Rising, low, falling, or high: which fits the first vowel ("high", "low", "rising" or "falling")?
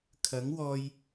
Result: rising